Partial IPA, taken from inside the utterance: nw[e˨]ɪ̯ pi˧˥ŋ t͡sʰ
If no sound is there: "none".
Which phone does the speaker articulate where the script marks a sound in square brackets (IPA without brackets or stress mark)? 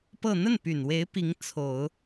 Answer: e˧˥